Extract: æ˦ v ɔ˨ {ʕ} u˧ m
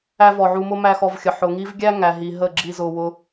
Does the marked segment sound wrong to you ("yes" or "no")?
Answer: no